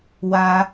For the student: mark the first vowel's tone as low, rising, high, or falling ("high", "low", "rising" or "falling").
high